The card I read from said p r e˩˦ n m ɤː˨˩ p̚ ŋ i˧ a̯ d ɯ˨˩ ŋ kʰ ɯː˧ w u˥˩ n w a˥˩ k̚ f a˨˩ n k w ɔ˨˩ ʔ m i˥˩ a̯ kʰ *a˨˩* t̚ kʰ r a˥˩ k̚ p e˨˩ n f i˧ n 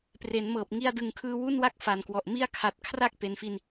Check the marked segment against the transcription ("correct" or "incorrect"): correct